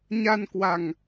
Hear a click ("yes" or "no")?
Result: no